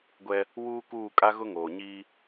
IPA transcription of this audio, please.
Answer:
ɡʷ ɛ˦ | w uː˦ k uː˦˨ kʼ a˦ ɣ ʊ˦ ŋ oː˨ ɲ iː˦

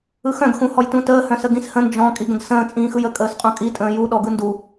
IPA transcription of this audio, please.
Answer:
ɯ x œ̃ ɡ x ũ h ɔ j t ũ t əː h œ̃ s ə ɡ ĩ s h ə̃ n d͡ʒ ɔ̃ kʼ i ɡ ə̃ ɡ s ə̃ː t͡sʼ ĩː x ɯ j ə kʼ əː s qʼ ũ kʼ i tʼ ə̃ː j u ɗ ɔ ɡ ɯ n d u

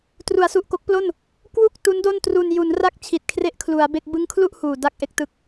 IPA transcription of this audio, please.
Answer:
t r u˩˦ a̯ s u˨˩ ʔ k o˦˥ k̚ p l o˥˩ n | k w u˥˩ k̚ t u˦˥ n d o˥˩ n t r u˧ n j u˩˦ n r a˥˩ k̚ t͡ɕʰ i˨˩ t̚ kʰ r e˦˥ ʔ kʰ l u˩˦ a̯ b e˥˩ k̚ b ɯ˦˥ ŋ kʰ l u˥˩ ʔ h uː˨˩ d a˥˩ k̚ ʔ e˥˩ k̚ t ɯ˦˥ k̚

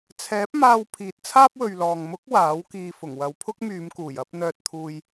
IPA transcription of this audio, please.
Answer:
t͡sʰ ɛː˨˥ p̚ m aː˧ w pʰ iː˨ t̚ t͡sʰ aː˥ p̚ w ɵ˨ ɥ l ɔː˨ ŋ m ʊ˨˥ k̚ w aː˨˥ w k iː˨ f ʊ˨˩ ŋ w ɐ˨ w pʰ ʊ˥ k̚ m yː˨˧ m k uː˨˩ j ɐ˨˥ p̚ n̪ œː˧ t̚ t̪ʰ uː˧ j

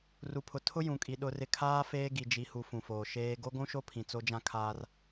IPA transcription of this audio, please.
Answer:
r u˨ pʰ ʊ˨ tʰ ʊ˦ j ũ˨ kʼ i˨ ɗ ʊ˨ r ɪ˨ kʰ aː˦ f eː˦ ɡ i˨ d͡ʒ i˨˦ h u˨˦ f ũ˨ f oː˨ ʃ eː˦ ɡ o˦ ɡʷ ũ˦ ʃ o˦ pʰ ĩ˨ t͡s o˦ d͡ʒ ã˦ kʰ aː˦ r

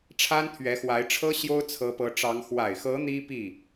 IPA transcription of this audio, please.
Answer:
ʈ͡ʂʰ a˥ n t̪ʰ ɥ ɛ˧˥ x w a˧˥ ɪ̯ ʈ͡ʂʰ ɤ˥ ɕ j o˥ ʊ̯ t͡sʰ ɤ˧˥ p ɤ˧˥ ʈ͡ʂ ɑ˧˥ ŋ x w a˨˩ ɪ̯ x ɤ˧˥ n̪ i˥ p i˥˩

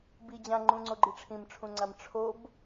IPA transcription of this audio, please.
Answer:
b i d͡ʑ ã ŋ͡ǃ ũ ŋ͡ǀ o ɡ͡ǃ i ʈ͡ʂʰ ĩ m ʈ͡ʂʰ ũ ŋ͡ǀ a m ʈ͡ʂʰ o b

